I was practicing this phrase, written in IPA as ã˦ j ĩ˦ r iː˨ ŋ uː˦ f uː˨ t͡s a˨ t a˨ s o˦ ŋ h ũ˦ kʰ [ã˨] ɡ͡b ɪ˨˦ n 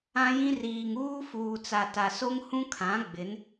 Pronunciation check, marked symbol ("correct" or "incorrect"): incorrect